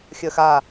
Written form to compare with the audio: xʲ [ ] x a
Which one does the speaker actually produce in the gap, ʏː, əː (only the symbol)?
əː